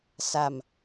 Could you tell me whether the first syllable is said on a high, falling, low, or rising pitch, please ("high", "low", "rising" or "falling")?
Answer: low